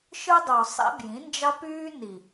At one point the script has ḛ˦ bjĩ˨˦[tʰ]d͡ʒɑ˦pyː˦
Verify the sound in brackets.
incorrect: n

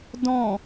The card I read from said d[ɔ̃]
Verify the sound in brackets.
correct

